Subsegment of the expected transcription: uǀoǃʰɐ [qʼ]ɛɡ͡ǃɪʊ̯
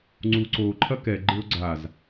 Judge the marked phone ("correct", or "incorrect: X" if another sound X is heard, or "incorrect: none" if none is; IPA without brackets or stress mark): incorrect: k